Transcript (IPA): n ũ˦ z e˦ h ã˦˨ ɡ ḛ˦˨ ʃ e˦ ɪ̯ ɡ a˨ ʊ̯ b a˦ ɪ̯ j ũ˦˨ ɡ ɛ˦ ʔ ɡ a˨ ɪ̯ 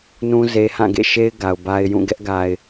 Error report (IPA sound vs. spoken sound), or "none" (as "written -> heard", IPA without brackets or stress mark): none